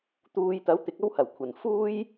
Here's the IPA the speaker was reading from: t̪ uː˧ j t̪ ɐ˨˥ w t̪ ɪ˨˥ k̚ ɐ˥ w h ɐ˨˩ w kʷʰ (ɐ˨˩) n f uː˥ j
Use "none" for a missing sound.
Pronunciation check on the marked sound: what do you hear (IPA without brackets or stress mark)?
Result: ɐ˨˩